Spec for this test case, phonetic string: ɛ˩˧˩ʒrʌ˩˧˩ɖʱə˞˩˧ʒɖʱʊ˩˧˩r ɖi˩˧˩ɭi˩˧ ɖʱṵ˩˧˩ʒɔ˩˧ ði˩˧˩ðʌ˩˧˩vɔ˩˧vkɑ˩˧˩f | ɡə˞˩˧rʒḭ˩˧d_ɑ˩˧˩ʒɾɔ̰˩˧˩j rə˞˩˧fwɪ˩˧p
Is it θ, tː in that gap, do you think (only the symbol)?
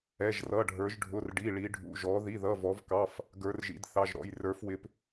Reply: θ